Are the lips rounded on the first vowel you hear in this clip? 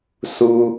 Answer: yes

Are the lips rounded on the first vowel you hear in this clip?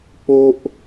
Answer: yes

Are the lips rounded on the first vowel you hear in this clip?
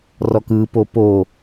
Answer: yes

